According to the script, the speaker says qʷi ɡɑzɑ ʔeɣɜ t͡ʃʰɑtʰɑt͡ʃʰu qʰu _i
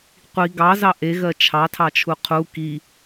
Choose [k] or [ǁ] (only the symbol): k